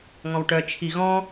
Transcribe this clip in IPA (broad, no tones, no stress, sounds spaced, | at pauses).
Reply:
ŋ ɔ̃ w ʈ œ t͡ʃʰ i ɣ ɔ̃